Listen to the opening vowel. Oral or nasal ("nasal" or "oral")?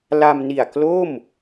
oral